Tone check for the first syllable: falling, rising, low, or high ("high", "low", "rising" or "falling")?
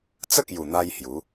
high